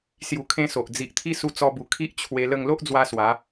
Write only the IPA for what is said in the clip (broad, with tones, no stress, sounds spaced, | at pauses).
s j u˧ kʰ ẽ˦ s o˨ ʔ d͡z i˨ ʔ t̪ʰ i˦ s u˧ t͡s ɔ˧ b u˨˩ kʰ i˦ ʔ t͡ɕʰ w e˧ l ə˥˧ ŋ l o˦ ʔ d͡z w a˧ s w a˨˦